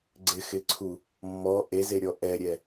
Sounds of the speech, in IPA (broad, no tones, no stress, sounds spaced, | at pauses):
ɡ͡ǀ ɪ x ɪ ǀʰ u | mː ɔ ʔ e z e ɾʲ ɔ ʔ ɛ ɾʲ ɛ